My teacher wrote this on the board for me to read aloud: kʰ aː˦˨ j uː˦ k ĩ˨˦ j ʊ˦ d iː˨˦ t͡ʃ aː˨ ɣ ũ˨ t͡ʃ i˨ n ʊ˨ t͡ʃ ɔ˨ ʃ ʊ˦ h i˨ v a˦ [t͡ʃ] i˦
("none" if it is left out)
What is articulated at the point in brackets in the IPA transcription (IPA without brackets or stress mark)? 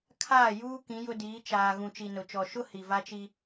t͡ʃ